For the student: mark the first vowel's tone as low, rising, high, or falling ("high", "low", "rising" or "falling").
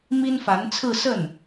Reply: high